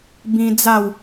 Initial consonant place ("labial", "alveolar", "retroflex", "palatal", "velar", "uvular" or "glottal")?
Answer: labial